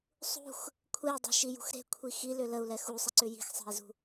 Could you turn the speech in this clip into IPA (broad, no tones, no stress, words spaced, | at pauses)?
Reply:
sˤṳx | kʷʰei̯dˤe̤ʃijṳx ɾe̤kʷʰi xilʏ ləu̯lɛ xusˤəǀʏ ji̤xsˤe̤i̯zṳ